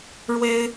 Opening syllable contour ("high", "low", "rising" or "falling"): high